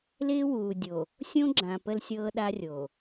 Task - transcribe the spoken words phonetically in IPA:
l ɪː˦ w uː˨ dʲ o˨ | sʲ õ˦ ɡ͡ǁ ã˨ p ə˦ l sʲ ɤː˦ ɗ a˦ rʲ o˨

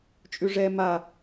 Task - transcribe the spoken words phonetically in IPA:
t͡ʃʼ ʉ ʐ ɛ m a

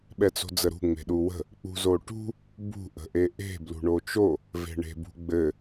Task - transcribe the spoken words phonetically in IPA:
ɓ ɛ t͡s o̤ d͡z ə ɾ ṳ ŋ͡m e̤ ɗ u w ə̤ | k͡p ṳ z o ʈ ṳ | b ṳ ʔ ə̤ ʔ e ʔ e̤ b l ṳ ɳ o t͡ʃ o | v e̤ ɳ e̤ b ṳ ɡ͡b ɘ

